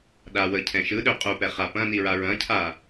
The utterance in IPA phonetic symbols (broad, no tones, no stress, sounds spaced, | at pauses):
ɗ a w ə cʰ ɛ̃ ʃ ɯ ɗ ø qʼ u p ɛ χ a p ɐ̃ n i ɹ a ɹ ɐ̃ cʰ a